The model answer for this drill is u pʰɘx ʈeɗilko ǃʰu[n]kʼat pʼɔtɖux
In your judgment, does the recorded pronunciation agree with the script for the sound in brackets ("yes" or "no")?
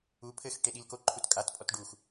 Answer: no